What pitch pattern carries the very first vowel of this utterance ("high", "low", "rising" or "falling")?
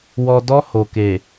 low